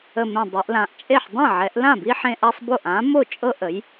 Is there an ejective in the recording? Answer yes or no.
yes